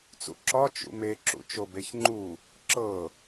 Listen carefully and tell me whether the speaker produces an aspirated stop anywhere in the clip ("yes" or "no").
no